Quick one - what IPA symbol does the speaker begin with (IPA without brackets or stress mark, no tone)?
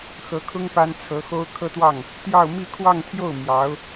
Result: x